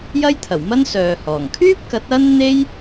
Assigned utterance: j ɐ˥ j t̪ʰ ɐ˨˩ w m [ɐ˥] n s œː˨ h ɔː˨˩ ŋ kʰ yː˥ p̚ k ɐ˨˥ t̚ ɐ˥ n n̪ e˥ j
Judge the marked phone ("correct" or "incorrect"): correct